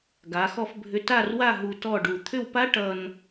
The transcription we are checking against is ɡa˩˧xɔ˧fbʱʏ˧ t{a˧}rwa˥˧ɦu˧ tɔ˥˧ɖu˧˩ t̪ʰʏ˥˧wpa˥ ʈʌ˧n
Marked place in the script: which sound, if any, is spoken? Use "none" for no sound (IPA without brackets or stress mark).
a˥˧